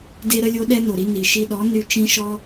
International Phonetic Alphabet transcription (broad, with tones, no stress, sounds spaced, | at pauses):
d e˥ ɾ ə˥ lʲ o˥ ɗ ɛ˥ n o˩ ɾ i˥ n i˩ ʃ i˧ ɗ ɔ˩˥ n y˧ t͡ʃ ĩ˥ ʃ ɔ˥